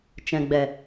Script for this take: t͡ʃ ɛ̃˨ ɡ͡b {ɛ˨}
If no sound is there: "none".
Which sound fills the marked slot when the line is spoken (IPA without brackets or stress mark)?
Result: ɛ˨